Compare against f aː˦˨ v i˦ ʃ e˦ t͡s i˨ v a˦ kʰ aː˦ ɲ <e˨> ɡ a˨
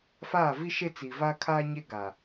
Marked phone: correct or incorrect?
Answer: incorrect